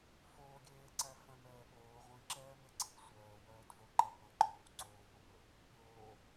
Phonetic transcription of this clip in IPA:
f oː ɡʲ eː ǀ æ f œ̃ m ɛː ɠ oː ʁʷ ĩ ǁ ɛː m e ǀʰ i̤ sʷ œː w œː d v o ǃ ɛ qʷ æ̃ ǃ oː w ŋ͡ǀ oː w õ m ɵ | pʲ oː

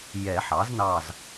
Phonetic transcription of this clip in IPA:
j ɛ˨˩˦ ħ ɑ˩˥ z n ɑ˦˨ z

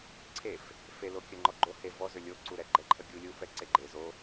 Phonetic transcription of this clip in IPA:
ǀʰ e f | f e l o kʲ ə ŋ͡ǃ ɔ ɡ͡ǃ o h e v ɔ z ʏ lʲ o ǀ u ɾ ɛ ɡ͡ǃ ɛ ǃʰ ə ɡʲ u lʲ u f ɛ ǀ e ɡ͡ǃ e z o

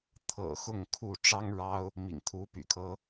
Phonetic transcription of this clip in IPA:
t̪ʰ ɤ̰˨˩ x ʊ˥˨ ŋ kʰ u˥˨ ʈ͡ʂ ɑ˦ ŋ ɻ ɑ˦ ʊ̯ | m ḭ˨˩ ŋ t̪ʰ u˨˦ p y̰˨˩ kʰ ɤ˦

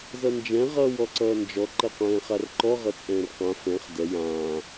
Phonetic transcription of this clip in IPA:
z ʌ n d͡ʒ ɛ̃ ʁ ʌː w ɔ ǀ ʌː n d͡ʒ ɔ ǃ ʌ qʷ ɛ̃ː χ a r ǃ ɔ ʁ ʌ t͡sʼ ɛ̃ː r q ã f ɛ̃ χ d ɛ j ãː

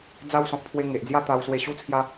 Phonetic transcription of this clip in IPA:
d͡z a˦ w s ɔ̃˨ k̚ pʰ w e˧ ŋ e˨ ʔ d͡z j a˥˧ t̪ a˧ w s w e˧ ɕ u˧ t͡sʰ j a˧

